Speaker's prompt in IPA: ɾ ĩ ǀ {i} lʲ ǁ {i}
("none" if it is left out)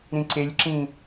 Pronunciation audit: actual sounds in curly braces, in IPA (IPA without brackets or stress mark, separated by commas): e, ĩ